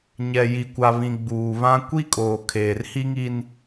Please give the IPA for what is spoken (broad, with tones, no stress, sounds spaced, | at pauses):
ɲ ɛ˨ j i˨ kʷ a˨ β ĩ˨ ɡ͡b uː˨ β ã˦ kʷ i˦ kʼ oː˨ kʰ eː˨ r h i˦ ŋ i˦ n